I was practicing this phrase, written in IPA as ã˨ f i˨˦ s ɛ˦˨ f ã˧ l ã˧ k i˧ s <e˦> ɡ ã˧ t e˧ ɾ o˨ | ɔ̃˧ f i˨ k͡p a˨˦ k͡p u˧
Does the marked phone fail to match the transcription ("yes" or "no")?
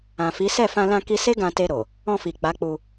no